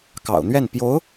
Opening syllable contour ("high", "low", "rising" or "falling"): low